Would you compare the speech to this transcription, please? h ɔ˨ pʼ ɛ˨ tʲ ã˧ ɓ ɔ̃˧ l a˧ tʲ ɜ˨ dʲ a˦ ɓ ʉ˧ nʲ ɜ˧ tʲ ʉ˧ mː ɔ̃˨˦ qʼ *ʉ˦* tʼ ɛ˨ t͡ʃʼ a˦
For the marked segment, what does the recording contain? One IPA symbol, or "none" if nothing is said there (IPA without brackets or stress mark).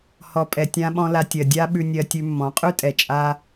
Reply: ʉ˦